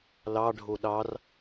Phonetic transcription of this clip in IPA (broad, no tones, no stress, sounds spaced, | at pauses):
l ɑ ɖʱ o ɗ ɑ r